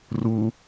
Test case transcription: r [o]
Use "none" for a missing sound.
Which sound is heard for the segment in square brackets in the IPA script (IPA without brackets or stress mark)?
u